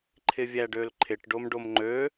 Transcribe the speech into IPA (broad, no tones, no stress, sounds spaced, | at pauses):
ǃʰ ɪ vʲ æ ɖ ø l ǃʰ ɪ ʈ ɖ o m ɖ o m ŋ͡ǃ ø